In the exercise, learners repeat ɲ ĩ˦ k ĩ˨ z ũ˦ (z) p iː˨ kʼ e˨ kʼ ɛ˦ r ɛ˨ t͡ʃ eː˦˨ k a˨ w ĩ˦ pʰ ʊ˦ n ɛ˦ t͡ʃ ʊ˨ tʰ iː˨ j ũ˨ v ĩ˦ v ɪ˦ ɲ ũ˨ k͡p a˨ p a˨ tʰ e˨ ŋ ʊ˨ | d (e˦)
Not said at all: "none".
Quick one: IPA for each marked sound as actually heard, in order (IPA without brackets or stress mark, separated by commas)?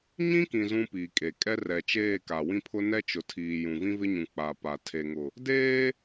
none, eː˦